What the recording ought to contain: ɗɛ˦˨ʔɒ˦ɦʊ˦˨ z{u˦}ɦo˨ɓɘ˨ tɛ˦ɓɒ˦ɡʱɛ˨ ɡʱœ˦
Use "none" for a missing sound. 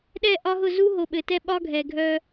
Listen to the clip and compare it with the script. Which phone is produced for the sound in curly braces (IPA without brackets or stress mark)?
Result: u˦